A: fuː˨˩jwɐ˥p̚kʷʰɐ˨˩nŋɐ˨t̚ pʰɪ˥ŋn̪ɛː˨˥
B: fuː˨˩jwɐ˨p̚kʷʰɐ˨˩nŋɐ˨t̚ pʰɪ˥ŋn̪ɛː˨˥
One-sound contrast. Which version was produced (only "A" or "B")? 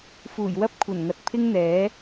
A